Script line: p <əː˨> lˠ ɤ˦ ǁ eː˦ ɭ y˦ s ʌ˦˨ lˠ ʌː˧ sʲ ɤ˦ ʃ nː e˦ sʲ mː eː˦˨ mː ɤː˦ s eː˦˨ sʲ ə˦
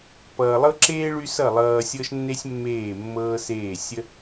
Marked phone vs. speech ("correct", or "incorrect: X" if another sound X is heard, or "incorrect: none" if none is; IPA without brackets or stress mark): incorrect: ʌː˨